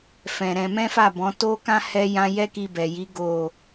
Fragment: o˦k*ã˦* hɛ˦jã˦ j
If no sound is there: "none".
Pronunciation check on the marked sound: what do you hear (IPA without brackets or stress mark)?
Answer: ã˦